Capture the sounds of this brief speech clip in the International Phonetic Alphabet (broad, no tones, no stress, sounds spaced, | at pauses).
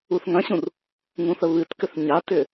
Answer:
u θ ŋ ɐ̃ ɕ ũ r | ŋ ũ θ ə β ɨ t k ʏ θ ɲ a t ʏ